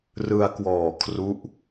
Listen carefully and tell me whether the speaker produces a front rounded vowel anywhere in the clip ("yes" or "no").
no